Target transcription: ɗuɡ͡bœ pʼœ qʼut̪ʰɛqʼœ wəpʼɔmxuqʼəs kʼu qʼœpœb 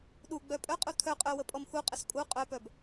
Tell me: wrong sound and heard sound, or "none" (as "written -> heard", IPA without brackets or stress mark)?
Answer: ɛ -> œ